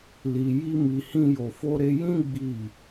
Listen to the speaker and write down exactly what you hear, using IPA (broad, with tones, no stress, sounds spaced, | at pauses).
l i˧ j i˦ m i˧ h ĩ˦ j o˧ f o˦ ɾ e˦ j ĩ˦ ɡ͡b i˦˨